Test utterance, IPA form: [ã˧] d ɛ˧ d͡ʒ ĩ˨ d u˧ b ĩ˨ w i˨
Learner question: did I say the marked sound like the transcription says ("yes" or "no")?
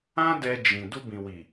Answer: no